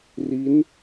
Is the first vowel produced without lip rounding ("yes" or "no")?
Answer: yes